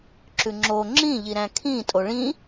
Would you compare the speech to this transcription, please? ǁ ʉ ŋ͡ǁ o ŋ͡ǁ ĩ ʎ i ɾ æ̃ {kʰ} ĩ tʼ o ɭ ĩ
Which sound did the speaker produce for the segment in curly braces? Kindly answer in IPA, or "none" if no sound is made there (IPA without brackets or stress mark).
kʰ